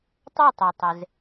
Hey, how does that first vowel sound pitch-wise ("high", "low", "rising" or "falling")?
falling